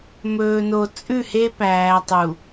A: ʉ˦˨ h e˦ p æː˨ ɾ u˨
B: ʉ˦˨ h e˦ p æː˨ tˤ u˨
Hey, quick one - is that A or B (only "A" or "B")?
B